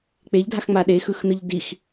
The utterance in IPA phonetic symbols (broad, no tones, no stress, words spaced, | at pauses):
k͡peʎdʱaxŋ͡ma ɗexɯxnɯʎ dix